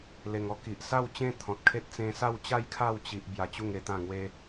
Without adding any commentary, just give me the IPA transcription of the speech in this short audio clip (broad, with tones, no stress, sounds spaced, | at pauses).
l e˨˩ ŋ ɔ˧ k i˨ ʔ s a˥˧ w t͡ɕ ẽ˥˧ t̪ʰ ɔ̃˨ t̚ kʰ e˦ t̚ t͡s ẽ˧ s a˥˧ w t͡ɕ a˥˧ j kʰ a˥˧ w t͡ɕ i˦ ʔ b j a˧ t͡ɕ u˥˧ ŋ e˧ t̪ ã˥˧ ŋ w e˦